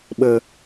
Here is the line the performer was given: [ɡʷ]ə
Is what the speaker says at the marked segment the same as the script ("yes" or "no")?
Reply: no